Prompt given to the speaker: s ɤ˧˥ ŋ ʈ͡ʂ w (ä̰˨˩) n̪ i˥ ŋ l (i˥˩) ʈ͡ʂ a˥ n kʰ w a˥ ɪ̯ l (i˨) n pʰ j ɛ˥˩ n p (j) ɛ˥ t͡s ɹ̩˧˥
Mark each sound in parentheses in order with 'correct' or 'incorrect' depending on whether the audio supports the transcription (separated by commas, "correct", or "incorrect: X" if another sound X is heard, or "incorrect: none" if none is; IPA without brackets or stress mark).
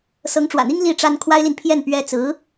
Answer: correct, correct, correct, incorrect: ɥ